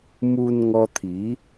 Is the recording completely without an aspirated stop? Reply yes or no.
no